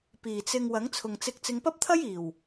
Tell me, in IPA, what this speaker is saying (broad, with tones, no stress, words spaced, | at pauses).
piː˨˩t͡sɪ˧ŋ wɐ˨˥ŋt͡sʰʊ˨ŋt͡sɪ˧k̚ t͡sɪ˨˧ŋpɐ˥p̚t̪ʰɐ˥jiː˨˩w